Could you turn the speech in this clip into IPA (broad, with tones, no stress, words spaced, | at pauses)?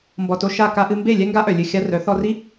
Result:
mbɔ˨to˧ ʃa˦˨ ka˧ʔɨ˧mbe˦˨ lʲɛ˦ŋɡa˦ʔœ˨ lʲɨ˨xʲa˧rœ˨˦ θɔ˧ri˦